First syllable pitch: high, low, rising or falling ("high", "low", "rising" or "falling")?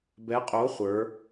rising